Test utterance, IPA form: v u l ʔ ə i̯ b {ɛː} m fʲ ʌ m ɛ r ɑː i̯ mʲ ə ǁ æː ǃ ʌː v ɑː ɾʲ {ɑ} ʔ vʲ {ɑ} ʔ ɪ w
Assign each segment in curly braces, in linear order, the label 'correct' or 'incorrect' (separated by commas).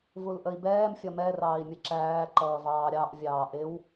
correct, correct, incorrect